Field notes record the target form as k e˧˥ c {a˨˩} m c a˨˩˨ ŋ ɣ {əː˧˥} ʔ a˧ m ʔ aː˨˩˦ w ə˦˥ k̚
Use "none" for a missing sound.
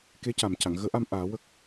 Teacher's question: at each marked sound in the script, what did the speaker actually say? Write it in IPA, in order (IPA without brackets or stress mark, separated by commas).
a˨˩, əː˧˥